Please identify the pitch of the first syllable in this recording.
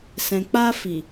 low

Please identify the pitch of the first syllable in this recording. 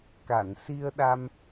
low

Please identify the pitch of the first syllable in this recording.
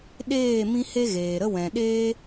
falling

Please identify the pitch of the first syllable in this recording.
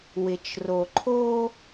low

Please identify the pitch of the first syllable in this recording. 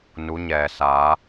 rising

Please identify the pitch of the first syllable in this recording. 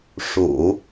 low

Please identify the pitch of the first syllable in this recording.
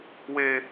high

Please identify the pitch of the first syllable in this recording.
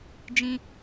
high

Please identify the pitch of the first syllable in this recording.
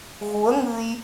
rising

